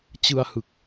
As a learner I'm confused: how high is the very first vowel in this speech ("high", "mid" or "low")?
high